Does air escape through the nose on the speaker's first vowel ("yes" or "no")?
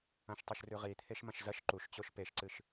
yes